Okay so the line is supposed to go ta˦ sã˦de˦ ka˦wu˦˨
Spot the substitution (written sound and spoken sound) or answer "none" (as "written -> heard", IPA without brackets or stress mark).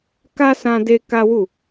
t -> k